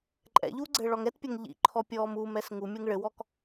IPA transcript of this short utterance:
ǃʼɛ̰ʎuː ɡ͡ǀɘːɭɔŋɛtpʲɐŋ ʎḭ ǃʰɔpʲɔːmuːmɛs ŋumʲeŋ ɭɘwɔk

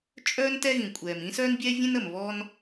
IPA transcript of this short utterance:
t͡ʃʼœː˥n tɛ˥ɣĩ˩kʷʼɛː˩mĩ˥ sœː˥nbʲɛː˥vʲẽ˥n ə˩mβɔ˥n

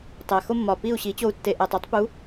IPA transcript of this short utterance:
tˤæ˨xo˦mːɒ˨pi˦˨u̯ ɕi˨˦t͡ɕo˧u̯tːe˨ʔæ˨tˤ u˦tˤpu˨˦

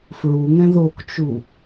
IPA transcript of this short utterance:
fɹuŋɛ̃ ðokt͡ʃu

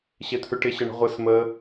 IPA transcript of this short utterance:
ɕet̪ʰʉʈɪɕə ɳə̤ʁʷes məː

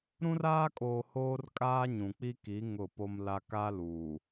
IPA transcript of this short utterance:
ɾũ˦raː˦kʼoː˨ hoː˦rkʼaː˦ɲũ˨k͡pi˦ ki˨˦ ŋʊ˦˨po˦mla˦ ka˦luː˨

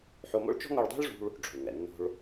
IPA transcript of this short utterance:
ħo˧mo̰˥ɭ t͡ʃɔ̤˥ ŋo˧ɭdˤo̤˥ɭʐṳ˧ɭ | ɖ͡ʐo̤˩ɭŋɛ̰˩ nːo̤˧ɭ

